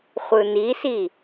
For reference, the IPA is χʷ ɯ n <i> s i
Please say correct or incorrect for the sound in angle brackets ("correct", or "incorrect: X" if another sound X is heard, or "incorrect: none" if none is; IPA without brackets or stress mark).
correct